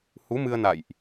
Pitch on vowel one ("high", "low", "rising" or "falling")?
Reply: rising